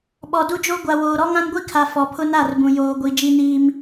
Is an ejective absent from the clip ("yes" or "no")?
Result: yes